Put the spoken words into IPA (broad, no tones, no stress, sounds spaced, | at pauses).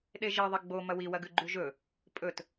ɗ e ʒ i ðˤ e ɡ͡b o m ɐ w i w ɐ ɡ ʉ ɡ͡ǃ ʉ ʒ ɵ | pʼ ɵ t